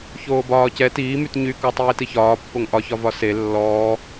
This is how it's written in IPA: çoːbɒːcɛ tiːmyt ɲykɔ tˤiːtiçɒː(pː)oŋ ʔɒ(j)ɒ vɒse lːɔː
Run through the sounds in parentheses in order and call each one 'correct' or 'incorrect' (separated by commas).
correct, incorrect